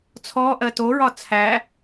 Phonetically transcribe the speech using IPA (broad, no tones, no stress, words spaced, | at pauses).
t͡sʰɔ ʔɜtoɹɒ t͡sʰæ